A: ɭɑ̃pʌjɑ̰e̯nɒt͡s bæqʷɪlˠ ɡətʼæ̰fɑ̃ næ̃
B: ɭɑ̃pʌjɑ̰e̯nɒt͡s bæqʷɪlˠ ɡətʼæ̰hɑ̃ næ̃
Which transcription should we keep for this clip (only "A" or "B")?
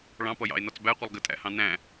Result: B